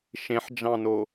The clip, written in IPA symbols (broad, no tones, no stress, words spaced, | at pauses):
ʃẽħd͡ʒɑ̃no